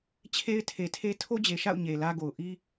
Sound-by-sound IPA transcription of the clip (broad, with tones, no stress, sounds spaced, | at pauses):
t͡ɕʰ e˦ ɪ̯ tʰ e˨ tʰ e˦ tʰ o˦ d͡ʑ e˨ ʃ a̰˦˨ ʊ̯ ɲ e˨ l ä˦ ɡ o˨ ʊ̯ ʔ i˦